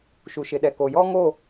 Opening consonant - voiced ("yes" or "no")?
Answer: no